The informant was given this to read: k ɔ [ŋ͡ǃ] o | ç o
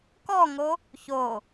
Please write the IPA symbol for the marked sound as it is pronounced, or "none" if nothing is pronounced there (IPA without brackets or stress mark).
ŋ